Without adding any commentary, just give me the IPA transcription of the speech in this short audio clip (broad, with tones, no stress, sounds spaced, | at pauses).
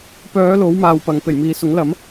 p œː˨˧ l o˨˥ w m aː˨ w p ɐ˨ ŋ p e˨˩ j m iː˨ s ʊ˨˥ ŋ l ɐ˨˥ m